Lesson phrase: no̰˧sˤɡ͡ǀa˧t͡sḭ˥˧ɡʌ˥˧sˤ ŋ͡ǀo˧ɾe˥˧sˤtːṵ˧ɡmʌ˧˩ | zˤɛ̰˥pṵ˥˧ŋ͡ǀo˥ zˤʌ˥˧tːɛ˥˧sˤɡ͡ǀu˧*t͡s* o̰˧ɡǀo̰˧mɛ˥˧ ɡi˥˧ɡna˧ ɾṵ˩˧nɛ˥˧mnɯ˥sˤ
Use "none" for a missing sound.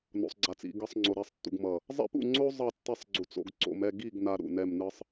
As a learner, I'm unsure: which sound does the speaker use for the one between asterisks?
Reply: t͡s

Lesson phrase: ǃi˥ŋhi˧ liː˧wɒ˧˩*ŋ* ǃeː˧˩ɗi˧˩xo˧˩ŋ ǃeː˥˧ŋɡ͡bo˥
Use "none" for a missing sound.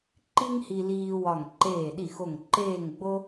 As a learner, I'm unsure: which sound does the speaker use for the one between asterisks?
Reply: ŋ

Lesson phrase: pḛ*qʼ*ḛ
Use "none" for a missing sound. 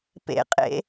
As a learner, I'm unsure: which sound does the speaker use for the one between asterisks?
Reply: qʼ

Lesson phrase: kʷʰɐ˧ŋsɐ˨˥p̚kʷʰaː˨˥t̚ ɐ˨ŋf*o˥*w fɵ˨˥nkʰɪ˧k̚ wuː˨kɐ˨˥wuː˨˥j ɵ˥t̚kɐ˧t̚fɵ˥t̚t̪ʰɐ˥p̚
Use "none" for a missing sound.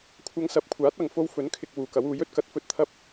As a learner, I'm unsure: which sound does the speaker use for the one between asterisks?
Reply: o˥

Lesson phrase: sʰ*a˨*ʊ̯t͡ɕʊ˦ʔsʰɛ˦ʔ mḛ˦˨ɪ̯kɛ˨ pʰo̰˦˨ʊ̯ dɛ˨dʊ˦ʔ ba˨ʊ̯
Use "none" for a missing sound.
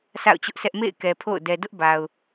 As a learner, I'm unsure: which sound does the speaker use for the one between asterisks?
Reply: a̰˦˨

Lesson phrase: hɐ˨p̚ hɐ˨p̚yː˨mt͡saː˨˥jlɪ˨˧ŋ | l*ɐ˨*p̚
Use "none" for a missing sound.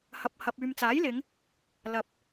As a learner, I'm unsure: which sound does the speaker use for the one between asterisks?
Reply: ɐ˨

